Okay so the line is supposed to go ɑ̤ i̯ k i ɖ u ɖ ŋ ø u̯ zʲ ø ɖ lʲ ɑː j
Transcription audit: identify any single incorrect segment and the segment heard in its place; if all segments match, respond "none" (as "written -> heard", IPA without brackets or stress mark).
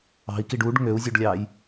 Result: none